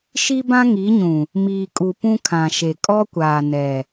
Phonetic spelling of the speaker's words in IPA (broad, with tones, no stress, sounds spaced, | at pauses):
ʃ i˦ b ã˦ ŋ i˨˦ ɲ ũ˨ | m iː˨ kʼ u˨ p ũ˦ kʰ ã˨ ʃ e˨ kʼ ɔ˦ kʷ aː˨ n ɛ˨